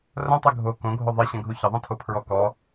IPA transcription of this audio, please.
r ɐ̃ tˤ ɘ ɡʱ o k õ ɡʱ o ðˤ i ɕ ɐ̃ ɡʱ u ç ə ðˤ ẽ tʰ o pʰ ɹ ɔ k ɔ

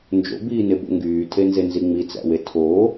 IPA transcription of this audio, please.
n d͡ʒ o̰ b iː n e b o̰ ŋ ɡ yː tʰ e n z e n z i ŋ͡m i t͡s æ̰ w e tʰ o

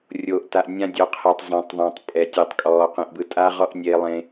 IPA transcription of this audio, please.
rʲ oː˨ ʔ t a˨ ʔ nʲ ã˦ dʲ ɔ˨˦ qʰ e˨ tˤ zˤ ẽ˨ tˤ ðˤ ã˨ tˤ pʼ ɛ˨ tʲ e˨ tˤ kʼ ɔː˨ q ẽ˨ ʔ b ɯ˨ tʼ aː˦ ʁ ɔː˦ ʔ nʲ eː˦ lˠ ẽ˦

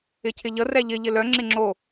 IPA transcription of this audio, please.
ɪ cʰ ɪ ʎ ə r ɛ ʎ ɪ ʎ ɪ l œ ŋ͡ǁ ɪ ŋ͡ǁ o

